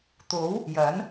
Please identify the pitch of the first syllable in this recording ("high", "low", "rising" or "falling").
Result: rising